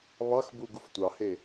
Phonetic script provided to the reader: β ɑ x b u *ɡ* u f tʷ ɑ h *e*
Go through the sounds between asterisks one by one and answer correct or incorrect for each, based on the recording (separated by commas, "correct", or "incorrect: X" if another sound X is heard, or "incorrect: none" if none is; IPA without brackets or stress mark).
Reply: correct, correct